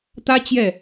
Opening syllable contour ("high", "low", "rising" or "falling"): high